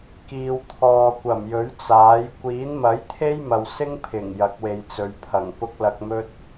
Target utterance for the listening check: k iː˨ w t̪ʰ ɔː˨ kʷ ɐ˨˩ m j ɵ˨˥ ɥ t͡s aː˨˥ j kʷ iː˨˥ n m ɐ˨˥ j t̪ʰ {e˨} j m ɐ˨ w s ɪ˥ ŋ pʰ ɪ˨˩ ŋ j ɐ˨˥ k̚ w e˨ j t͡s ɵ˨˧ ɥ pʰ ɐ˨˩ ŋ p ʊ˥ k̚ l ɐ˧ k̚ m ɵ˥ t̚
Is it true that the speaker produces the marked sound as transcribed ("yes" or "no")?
no